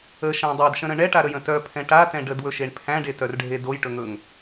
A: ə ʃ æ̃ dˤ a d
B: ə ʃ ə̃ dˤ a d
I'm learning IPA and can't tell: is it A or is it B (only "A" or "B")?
A